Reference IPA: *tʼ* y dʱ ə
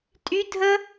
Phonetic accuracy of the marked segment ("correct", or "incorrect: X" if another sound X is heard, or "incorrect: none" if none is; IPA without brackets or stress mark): correct